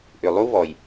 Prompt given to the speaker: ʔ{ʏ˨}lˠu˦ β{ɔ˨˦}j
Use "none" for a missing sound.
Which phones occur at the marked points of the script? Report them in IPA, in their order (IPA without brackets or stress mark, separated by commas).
ʏ˨, ɔ˨